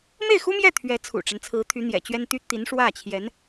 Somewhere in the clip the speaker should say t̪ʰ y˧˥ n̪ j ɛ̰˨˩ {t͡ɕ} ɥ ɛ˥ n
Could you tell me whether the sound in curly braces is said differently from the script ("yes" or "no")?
no